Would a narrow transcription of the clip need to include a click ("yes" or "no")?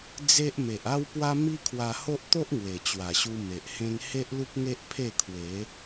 no